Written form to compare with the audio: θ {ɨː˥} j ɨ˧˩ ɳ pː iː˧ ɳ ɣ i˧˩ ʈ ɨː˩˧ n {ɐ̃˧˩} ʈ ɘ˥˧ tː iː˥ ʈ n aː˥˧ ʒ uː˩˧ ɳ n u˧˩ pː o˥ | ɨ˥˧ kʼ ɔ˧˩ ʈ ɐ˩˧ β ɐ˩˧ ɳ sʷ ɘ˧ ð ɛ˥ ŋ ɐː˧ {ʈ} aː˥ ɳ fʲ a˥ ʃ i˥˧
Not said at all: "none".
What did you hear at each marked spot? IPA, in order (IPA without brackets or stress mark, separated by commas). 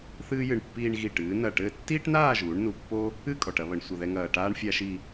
ɨː˥, ɐ˧˩, ʈ